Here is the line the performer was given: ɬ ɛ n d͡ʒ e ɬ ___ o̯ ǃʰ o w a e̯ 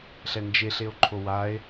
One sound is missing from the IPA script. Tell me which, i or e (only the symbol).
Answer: e